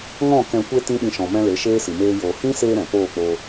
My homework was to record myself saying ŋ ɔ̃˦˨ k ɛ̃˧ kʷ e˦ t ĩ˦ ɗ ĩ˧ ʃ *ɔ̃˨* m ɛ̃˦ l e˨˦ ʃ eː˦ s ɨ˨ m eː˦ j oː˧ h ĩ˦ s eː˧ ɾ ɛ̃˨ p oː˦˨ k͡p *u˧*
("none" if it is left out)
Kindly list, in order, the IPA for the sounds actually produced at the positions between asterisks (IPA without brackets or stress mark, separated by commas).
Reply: ɔ̃˨, o˧